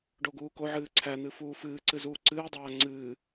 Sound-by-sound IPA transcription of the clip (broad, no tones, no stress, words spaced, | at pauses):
ɖoɡuːkoʕɨː ǀʰæn̪ɨ fuːfɨːǀɨ zuːǀɨːdˤaː ŋ͡ǀɨː